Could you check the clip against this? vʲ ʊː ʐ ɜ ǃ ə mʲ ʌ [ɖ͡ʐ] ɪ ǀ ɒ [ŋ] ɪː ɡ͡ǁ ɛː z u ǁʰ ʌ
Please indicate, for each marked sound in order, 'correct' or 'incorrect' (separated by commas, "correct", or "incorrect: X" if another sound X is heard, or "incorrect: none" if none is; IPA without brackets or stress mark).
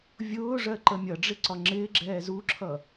correct, incorrect: ŋ͡ǁ